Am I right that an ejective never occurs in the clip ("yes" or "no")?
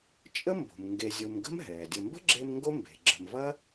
no